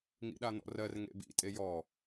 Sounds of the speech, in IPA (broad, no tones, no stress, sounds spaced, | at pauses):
ŋ ḭ ɗ a n̪ ɔ̰ r ɜ r ŋ ḛ b ḭ tʼ e j ɔ